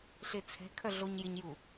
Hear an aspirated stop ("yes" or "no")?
yes